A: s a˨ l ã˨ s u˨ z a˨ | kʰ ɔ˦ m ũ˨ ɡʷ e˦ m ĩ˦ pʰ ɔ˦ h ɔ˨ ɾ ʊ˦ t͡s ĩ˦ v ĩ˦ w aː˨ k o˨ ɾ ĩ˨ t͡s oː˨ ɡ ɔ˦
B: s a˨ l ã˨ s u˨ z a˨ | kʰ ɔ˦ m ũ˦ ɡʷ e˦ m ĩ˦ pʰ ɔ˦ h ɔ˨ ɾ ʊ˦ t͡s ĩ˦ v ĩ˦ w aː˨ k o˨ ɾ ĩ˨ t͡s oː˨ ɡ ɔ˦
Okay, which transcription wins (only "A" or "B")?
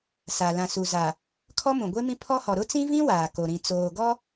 A